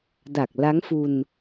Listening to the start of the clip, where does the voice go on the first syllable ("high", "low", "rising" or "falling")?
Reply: low